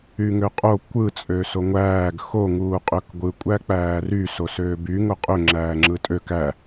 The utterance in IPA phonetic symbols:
y ŋ ø qʼ o kʷ ɯ t͡sʼ ø s o ŋʷ æː ɡ x o ŋ uː qʼ ø k ɡʷ ɯ kʷʼ æ k͡p æː r y s o s øː b y ŋ o qʼ ø ŋ͡ǁ æː ŋ͡ǁ ɯ tʼ ø k æ

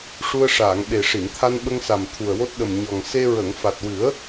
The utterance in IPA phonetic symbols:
ʂ u˧ ə̯ ʂ aː˨˩˨ ŋ ɓ e˨˩ ʂ i˨˩˨ n t̪ʰ a˧ n ɓ ə˧ ŋ s a˨˩ m t̪ʰ u˨˩ ə̯ w o˦˥ t̚ ɗ ə˨˩ m ɲ ɔ˨˩ ŋ s e˧ ɹ ə˨˩˨ ŋ f a˨˩ t̚ w ɨ˨˩˦ ə̯

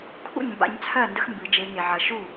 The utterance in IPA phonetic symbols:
kʰ ṵ˥˩ ɲ m b a̰˨˦ ɲ t͡sʰ ɜ˥˩ n d ə˦˥ x m b ɨ˨˩˦ d͡ʒ e˨˦ ŋ e˨ ʕ ɐ˨˦ ʃ u˥˩

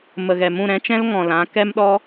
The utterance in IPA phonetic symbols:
m ə˨ ɣ ɛ˨ m ũ˦˨ ɾ ɛ̃˦ t͡ʃ ɛ̃˦ l ŋ ɔ̃˨ l ã˨˦ k ɛ˦ m ɗ ɔ˦

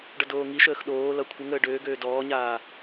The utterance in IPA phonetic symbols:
ɖ ʌ d oː ŋ i ʃ əː x ɗ oː l ʌ kʷʰ ə ŋ əː ɖ øː ɡ øː d ɔː ɲ aː

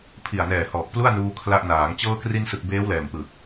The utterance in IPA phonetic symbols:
pʰ i˨˩ a̯ n ɛː˨˩ h ɔː˨˩ k̚ p l u˥˩ a̯ n uː˧ kʰ l a˦˥ ʔ n aː˩˦ ŋ t͡ɕ ɤː˧ k r i˧ n s ɯ˨˩ k̚ b eː˦˥ w l ɛː˨˩ m p ɯ˨˩ k̚

